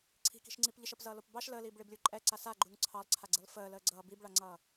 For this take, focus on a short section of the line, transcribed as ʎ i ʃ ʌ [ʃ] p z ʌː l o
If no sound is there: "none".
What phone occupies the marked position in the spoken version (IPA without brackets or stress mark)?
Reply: none